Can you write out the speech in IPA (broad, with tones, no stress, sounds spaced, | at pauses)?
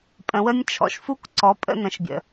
pʼ ə̃˩˧ w ə˦ nʲ t͡ʃʰ ɔ̰˩ ʃ f u˦ k ǀ ɔ˩˥ pʼ ə̰˥˨ n ə̃˩˥ ʃ bʲ ə̰˩